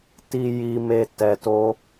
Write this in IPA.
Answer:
t i˧ j i˧ m e˧ t ɛ˧ t o˦

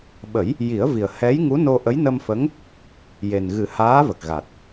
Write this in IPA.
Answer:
ɓ ə˨˩˦ j | j i˨˩˦ ə̯ v i˨˩ ə̯ h ɛ˧˥ j ŋ u˧˥ n o˧ ʔ ə˧˥ j n ə˧ m f ə˧˥ ŋ | j e˨˩ n ɣ ɨ˨˩˦ h aː˧˥ v ə˨˩ k̚ ɣ a˨˩ t̚

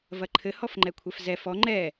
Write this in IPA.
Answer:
v ɐ ǃʰ ɘ h ɔ f ŋ͡ǃ ɛ kʷʰ ɛ f z ɛ f ɔ ŋ͡ǃ ɛ

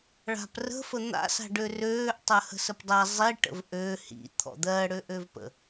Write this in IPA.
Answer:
ɭ a̤ p r ə̤ f ə n̪ a̰ s a̤ ɖ ø r øː ʔ tˤ ɜ h ə̤ s ə p dˤ a zˤ i ʈ ə̰ v ʔ ø h ḭ t̪ʰ ɔ̰ d̪ ɜ ɽ ø ʔ ø v p ə̰

